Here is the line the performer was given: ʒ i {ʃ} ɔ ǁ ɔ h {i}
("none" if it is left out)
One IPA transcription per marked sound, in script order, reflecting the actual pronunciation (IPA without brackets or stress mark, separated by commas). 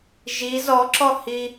z, i